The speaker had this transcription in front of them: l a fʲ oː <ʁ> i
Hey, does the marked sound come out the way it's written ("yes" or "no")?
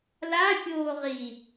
yes